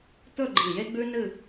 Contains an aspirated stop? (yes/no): no